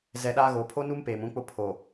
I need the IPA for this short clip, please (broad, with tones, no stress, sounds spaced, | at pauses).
z ɛ˨ ɗ aː˦ ɣ oː˨ pʰ o˦ n u˦ m p eː˨ m ũ˦ k͡p ʊ˦ pʰ o˨